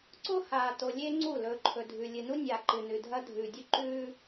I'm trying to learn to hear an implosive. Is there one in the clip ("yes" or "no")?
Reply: no